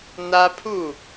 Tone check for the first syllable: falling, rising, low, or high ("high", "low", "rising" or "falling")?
high